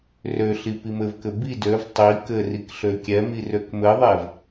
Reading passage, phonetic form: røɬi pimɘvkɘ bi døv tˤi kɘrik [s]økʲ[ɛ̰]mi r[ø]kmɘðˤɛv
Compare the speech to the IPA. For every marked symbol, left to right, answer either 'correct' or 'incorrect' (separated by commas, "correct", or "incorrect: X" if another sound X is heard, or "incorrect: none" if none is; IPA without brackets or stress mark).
incorrect: ɬ, incorrect: ɛ, correct